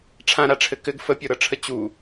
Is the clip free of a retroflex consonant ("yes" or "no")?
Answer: no